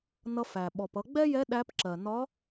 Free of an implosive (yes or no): no